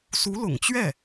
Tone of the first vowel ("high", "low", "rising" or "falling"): rising